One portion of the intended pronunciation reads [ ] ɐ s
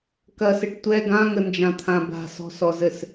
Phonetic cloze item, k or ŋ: k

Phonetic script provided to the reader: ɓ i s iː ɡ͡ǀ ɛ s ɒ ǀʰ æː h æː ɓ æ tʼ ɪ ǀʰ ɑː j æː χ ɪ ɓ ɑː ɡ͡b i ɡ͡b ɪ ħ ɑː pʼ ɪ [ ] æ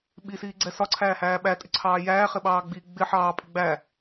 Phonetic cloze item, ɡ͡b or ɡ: ɡ͡b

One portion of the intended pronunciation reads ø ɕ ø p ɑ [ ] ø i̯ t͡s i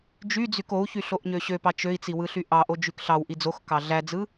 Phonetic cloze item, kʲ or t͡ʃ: t͡ʃ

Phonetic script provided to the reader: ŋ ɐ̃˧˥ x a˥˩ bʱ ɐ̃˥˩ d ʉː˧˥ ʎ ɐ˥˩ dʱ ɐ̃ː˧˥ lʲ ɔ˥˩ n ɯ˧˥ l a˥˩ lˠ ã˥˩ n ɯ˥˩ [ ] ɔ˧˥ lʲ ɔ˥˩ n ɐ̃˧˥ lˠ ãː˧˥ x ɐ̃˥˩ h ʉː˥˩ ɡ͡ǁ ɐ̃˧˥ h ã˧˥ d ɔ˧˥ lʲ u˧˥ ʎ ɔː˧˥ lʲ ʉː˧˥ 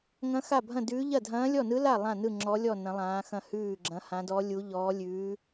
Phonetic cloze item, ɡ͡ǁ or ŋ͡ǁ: ŋ͡ǁ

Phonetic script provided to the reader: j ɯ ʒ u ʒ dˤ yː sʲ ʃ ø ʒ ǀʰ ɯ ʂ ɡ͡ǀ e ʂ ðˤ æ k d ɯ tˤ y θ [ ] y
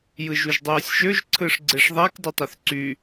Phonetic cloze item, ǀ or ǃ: ǀ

